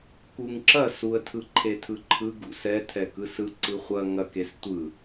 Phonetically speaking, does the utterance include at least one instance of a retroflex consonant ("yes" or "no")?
no